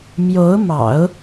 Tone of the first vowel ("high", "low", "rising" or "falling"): rising